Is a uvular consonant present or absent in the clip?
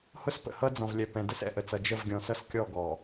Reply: absent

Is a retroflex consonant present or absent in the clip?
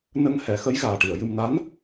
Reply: present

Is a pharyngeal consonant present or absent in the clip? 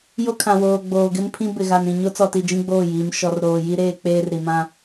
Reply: absent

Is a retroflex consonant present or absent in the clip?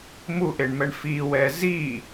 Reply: present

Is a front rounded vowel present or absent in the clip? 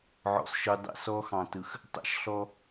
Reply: absent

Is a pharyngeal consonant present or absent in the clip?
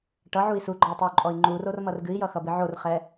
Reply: present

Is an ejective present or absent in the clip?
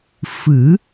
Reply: absent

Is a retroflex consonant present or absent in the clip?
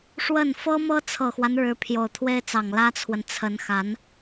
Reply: present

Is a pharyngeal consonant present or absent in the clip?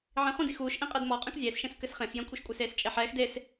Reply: present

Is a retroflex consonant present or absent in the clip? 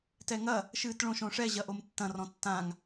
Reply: present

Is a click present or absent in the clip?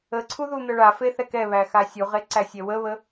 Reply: present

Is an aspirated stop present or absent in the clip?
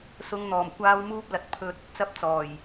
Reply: present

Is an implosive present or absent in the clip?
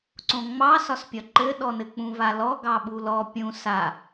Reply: present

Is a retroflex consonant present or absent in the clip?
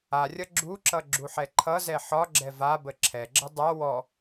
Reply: absent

